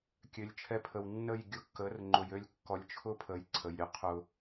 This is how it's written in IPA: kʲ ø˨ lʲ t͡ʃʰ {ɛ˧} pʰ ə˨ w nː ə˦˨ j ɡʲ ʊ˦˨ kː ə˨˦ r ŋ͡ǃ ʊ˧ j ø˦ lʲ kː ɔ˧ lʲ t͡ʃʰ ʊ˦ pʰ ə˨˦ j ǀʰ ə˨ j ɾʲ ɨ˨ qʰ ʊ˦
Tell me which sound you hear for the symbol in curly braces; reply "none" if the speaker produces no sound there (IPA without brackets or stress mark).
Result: ɛ˧